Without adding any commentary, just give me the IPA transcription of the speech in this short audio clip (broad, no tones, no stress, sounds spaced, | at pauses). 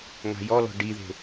ŋ a̤ j ɔ l ɔ̤ ɖ i ð e̤